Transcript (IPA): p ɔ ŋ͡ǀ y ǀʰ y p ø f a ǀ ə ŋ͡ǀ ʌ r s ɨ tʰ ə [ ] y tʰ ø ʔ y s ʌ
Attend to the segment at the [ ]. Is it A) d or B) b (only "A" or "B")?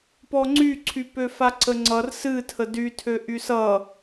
A